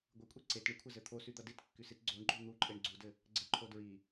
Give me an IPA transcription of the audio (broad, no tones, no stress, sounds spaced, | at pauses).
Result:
ɡʷ ɨ kʷʼ ɛ ǀ e t ɳ i kʷʰ ɘ z ɘ t̪ʰ o s y d̪ ʌ d i t kː y s i t ɡ͡ǀ o ɳ ɡ͡ǃ o n̪ u ǃʼ e ɳ ɡ͡ǀ u d ɘ | ɡ͡ǀ ɘ ǃʰ o d ɹ i